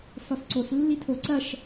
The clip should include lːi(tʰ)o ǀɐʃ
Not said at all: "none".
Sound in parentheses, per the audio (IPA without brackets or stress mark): tʰ